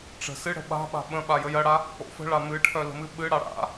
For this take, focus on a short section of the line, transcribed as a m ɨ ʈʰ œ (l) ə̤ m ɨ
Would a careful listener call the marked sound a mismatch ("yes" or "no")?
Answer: no